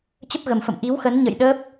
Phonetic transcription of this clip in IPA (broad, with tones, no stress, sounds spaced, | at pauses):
t͡ɕ ə˦˥ p̚ ɣ ə˨˩ m f ə̰˧˨ m ʔ i˨˦ w x ə˨˦ n ɲ ə̰˧˨ j ɗ ə˦˥ p̚